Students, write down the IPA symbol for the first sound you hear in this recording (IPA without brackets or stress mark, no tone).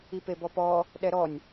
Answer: i